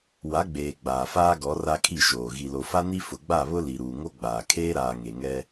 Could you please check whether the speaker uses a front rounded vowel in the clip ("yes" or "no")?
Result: no